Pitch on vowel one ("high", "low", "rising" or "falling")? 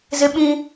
high